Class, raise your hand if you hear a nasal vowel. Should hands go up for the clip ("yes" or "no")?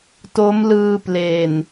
no